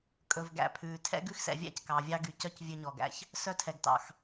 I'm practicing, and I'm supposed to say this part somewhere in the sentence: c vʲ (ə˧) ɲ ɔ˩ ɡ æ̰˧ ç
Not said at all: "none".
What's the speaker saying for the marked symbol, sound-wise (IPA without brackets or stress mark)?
ø˧